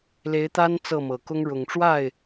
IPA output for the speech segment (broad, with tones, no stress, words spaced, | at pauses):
le˧˥ɪ̯t̪a˥n t͡sɤ˥˩mɤ˨˩kʊ˥ŋ ɻʊ˨˩ŋʈ͡ʂwa˥˩ɪ̯